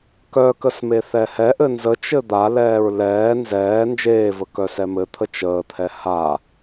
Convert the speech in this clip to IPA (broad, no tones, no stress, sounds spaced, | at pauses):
k œ k ə s m e θ ɛ h ɛ ʔ ɘ n z ə t͡ʃ ɘ d̪ a l ɛː ɹ l ɛː n z ɛː n d͡ʒ eː v ə k œ s ɛ m ɘ t̪ʰ ə t͡ʃ əː t̪ʰ ɛ h a